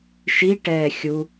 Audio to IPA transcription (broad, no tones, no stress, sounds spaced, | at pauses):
ʃ i ʈ ɛː xʲ u